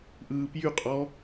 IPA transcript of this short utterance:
ʔ ɯː p j y qʼ ɔ

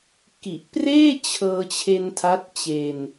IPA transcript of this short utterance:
k i˨˩ ʔ p r eː˥˩ t͡ɕʰ ɤː˧ t͡ɕʰ e˧ n tʰ a˦˥ t̚ t͡ɕ e˧ n

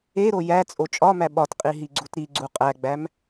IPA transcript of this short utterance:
e ɾ o j æ t͡sʼ o t͡ʃʼ ɒ m æ ɓ ɒ t qʼ i ɦ i ɡ͡ǀ u t ɾ i ɡ͡ǀ u qʼ æ ɡ͡b æ m

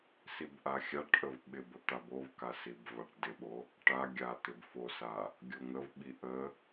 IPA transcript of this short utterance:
s i b ʔ a xʲ a ʈ ʔ ə v ɓ ɪ b ə t̪ a b o v k a s i b v a ʈ d ɪ ɓ o | ʈ a ɡʲ a t̪ ɪ b f o s a | ɡʲ o ŋ ə v ɓ i ʔ ə

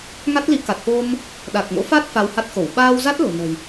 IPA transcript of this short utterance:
ŋ a˦˥ t̚ l i˨˦ k a˨˩ t̚ f o˧ m | ɗ a˨˩ k̚ ŋ o̰˧˥ f a˦˥ t̚ f a˧ w h a˦˥ t̚ x o˧˩ w ɓ aː˧ w z a˦˥ t̚ l o̤˨˩ n ə̤˨˩ j

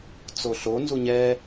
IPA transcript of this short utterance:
t͡s o ɬ o n z u ɲ ɛ

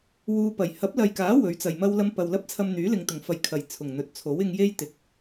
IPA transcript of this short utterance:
w uː˧ p ɐ˨˩ j h ɐ˨˥ p̚ l ɐ˨ j k aː˨˥ w ɵ˨˥ ɥ t͡s ɐ˨ j m ɐ˥ w l ɐ˥ m p ɐ˨ w l ɐ˥ p̚ t͡sʰ ɐ˧ m n̪ yː˨˥ l ɪ˨ ŋ t̪ ʊ˨˩ ŋ f ɐ˨˧ j kʰ ɐ˨˩ j t͡sʰ ʊ˨˩ ŋ n̪ ɵ˨ t̚ t͡sʰ o˨˥ w ɪ˧ ŋ j e˥ j t̪ ɪ˨˥ k̚

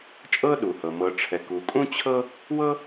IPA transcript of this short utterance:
t͡ʃʼ ɤ˥ ɗ u˩ h ɤ˩ m ɤ˩ ʈ͡ʂʰ ɛ˩ k u˩ kʼ ũ˥ t͡ɕʰ ɤ˥ | w ɤ˥

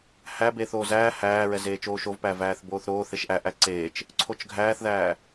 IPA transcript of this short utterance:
h æ b eː θ oː z æː h æː ɹ ɛ z eː t͡ʃ oː ʃ o v p æ v æː θ b oː θ ɾ oː θ e ʃ ʔ æ ʔ æ ǀ eː t͡ʃ | ǀʰ o t͡ʃ ɡʱ æː θ ð æː

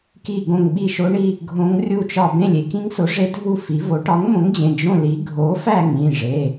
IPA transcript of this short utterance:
k i˥˧ ɡ õ˥˧ ŋ ɓ i˥˧ ʃ o˦˥ ɳ i˥˧ | ɡʱ õ˦˥ ŋ rʲ u˥˧ t͡ʃ ɒ˥˧ b ẽ˥˧ lʲ e˨˥ k ĩ˦˥ ŋ s o˨˥ ʐ e˦˥ dʱ u˥˧ f i˨˥ v o˨˥ ʈ ɒ˨˥ ŋ m õ˨˥ ŋ d͡ʑ ẽ˩˧˩ d͡ʒ õ˥˧ l i˨˥ ɡʱ o˨˥ f æ˥˧ ŋ ĩ˩˧˩ ʐ e˩˧˩

